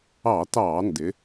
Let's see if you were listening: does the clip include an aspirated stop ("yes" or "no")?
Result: no